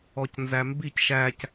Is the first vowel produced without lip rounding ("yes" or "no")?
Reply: no